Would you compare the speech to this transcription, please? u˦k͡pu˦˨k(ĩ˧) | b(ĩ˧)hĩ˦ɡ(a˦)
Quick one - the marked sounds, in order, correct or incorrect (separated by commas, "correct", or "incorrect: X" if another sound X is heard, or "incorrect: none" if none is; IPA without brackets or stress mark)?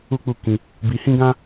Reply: correct, incorrect: i˧, incorrect: ã˦